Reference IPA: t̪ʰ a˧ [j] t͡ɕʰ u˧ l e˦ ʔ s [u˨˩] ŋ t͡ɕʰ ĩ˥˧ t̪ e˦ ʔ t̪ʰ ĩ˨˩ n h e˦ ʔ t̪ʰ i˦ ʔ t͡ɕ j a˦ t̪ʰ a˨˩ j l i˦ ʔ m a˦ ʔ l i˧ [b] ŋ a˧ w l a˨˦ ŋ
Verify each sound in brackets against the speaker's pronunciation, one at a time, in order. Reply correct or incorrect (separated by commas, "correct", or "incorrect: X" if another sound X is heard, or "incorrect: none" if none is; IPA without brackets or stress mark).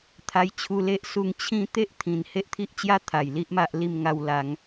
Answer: correct, incorrect: u˧, incorrect: m